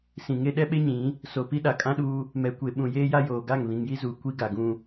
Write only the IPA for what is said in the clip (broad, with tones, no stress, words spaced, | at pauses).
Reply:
sĩ˨ŋe˦ ɗɛ˦ɓe˦ɲĩ˨˦ | so˨pi˦ ɗa˨kʼã˦ɗuː˦ | mɛ˨kʷe˨ ɓũ˨jeː˦ja˦ joː˨ ɡa˦˨ŋβĩ˨ŋji˦zuː˨ kʷi˦ɡa˨ɡũ˦